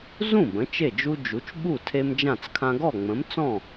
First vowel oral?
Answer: no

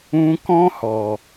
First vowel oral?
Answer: no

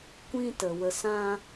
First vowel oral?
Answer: no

